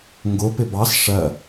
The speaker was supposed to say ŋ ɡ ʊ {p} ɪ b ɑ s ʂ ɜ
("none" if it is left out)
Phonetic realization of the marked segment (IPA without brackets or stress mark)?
p